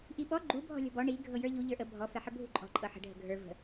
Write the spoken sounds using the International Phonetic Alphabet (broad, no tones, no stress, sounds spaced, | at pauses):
ʔ i ɓ ɔ ɡ͡ǃ u bʱ ɔ̤ lʲ ɔ̤ b ɔ ɳ i ɡʱ ɤ j ə˞ ʎ u ʎ ə˞ ʔ ə bʱ ɔ f ɛ ħ ə bʱ ṳ ǃʼ ɔ̤ ǃʼ ɤ ħ ə̤ ɖʱ ə̤ ɡʱ ə˞ v ə̤